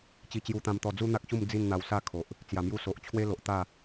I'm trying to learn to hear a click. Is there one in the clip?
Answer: no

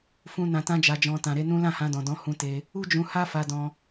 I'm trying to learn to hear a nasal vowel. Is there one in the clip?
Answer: yes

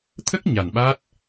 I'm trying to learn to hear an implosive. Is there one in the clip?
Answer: yes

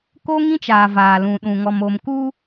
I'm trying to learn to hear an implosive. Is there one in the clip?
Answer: yes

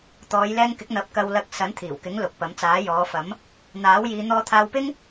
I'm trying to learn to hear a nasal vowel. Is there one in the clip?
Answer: no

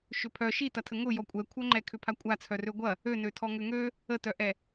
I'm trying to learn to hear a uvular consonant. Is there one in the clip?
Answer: no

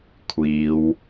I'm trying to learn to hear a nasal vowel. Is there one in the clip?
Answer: no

